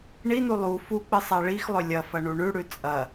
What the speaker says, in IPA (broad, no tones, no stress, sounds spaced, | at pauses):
ɳ i n u lˠ u f u k͡p ɨ sˤ a ɭ i x lˠ ɵ lʲ ɐ f ɐ ɳ u ɳ ʉ ɽ ʉ t͡sʼ ɐ